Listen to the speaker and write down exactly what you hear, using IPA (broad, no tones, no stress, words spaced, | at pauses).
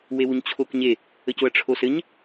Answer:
wewuɲt͡ɕʰokɲe | əcoɐ̯ʈ͡ʂʰosɘɲ